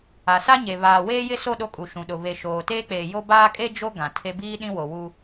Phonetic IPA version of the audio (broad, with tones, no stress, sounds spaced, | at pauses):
a˨ s a˦ ɲ e˨ β aː˨ w eː˦ j ɪ˦ s o˦˨ ɗ o˦ kʼ u˨ ʃ ũ˨ ɗ ʊ˨ β e˨ ʃ oː˨ t eː˦ k͡p eː˨ j o˦ b aː˦ kʼ e˦ d͡ʒ o˦ ɡ ã˨ tʰ e˦ b iː˦ ɗ ĩ˦ w o˨ w u˦